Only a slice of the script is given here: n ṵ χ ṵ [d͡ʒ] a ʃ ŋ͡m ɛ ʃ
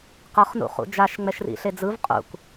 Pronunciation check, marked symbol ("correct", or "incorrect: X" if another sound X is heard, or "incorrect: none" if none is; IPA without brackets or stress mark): correct